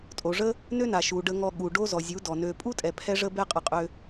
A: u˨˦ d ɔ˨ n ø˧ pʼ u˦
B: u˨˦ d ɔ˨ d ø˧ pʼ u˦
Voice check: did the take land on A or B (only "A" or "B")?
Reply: A